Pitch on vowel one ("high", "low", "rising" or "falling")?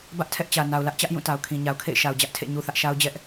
high